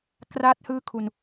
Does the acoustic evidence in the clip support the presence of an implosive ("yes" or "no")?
no